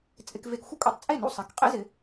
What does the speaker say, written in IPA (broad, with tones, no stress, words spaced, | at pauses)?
t͡sʼɪ˧kve˧kxʷɪ˥ kʷʼḛ˧tˤt͡sʼe˥˩nṵ˥˩ sˤɪ˩˥k qʼḛ˥zɪ˩˥